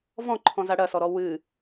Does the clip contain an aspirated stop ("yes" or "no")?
yes